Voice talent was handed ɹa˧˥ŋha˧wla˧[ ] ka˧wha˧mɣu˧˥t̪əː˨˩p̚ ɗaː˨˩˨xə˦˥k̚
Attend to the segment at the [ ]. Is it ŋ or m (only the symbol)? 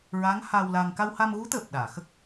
ŋ